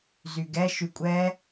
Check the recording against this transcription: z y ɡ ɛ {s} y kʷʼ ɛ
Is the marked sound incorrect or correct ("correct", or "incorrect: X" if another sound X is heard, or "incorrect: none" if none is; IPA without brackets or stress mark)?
incorrect: ʃ